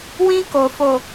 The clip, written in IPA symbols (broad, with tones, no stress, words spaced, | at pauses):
wĩ˦ ko˨fo˨